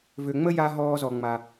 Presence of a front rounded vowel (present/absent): present